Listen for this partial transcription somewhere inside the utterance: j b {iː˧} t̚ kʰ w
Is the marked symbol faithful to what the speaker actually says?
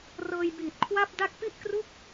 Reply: no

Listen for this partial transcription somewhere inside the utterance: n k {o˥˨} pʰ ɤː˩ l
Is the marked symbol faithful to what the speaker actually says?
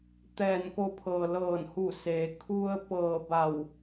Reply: no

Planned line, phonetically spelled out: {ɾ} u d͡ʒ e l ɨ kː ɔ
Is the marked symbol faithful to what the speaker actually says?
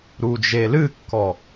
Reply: yes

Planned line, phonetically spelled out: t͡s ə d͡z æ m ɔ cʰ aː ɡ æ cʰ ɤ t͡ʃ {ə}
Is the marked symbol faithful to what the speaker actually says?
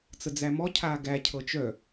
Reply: no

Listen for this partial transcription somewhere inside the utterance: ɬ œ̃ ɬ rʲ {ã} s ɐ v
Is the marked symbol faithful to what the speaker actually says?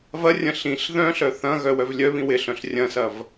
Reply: no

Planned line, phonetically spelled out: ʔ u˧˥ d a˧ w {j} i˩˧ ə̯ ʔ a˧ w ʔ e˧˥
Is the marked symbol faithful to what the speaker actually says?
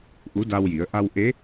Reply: yes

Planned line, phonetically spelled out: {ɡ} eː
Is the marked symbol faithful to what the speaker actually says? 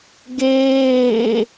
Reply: yes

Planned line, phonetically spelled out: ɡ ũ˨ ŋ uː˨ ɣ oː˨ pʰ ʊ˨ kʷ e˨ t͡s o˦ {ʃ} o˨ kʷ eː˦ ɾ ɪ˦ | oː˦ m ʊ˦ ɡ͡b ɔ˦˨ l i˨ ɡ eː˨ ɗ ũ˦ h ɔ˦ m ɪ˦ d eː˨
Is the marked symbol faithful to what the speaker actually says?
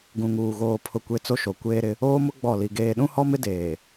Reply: yes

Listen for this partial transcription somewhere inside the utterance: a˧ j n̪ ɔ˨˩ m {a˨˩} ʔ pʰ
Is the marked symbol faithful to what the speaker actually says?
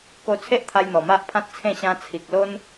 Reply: no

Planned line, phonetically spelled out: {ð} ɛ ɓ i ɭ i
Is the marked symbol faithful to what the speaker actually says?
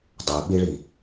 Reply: no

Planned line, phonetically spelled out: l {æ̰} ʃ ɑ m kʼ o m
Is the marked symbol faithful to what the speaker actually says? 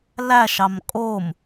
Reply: no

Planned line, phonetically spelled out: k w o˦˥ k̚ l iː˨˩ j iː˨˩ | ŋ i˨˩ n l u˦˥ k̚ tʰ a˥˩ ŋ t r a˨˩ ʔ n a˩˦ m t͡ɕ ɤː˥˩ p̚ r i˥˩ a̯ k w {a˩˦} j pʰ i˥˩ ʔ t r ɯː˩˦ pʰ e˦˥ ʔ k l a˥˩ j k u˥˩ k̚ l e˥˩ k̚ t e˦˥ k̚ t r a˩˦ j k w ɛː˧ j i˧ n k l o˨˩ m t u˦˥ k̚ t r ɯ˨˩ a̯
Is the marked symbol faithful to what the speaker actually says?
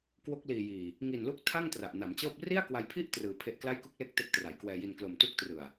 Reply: no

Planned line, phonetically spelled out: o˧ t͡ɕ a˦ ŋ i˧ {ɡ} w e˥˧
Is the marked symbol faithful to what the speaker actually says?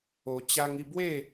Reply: no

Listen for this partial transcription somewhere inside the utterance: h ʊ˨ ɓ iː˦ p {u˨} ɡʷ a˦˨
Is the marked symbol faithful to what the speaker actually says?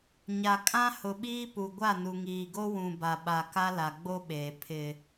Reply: yes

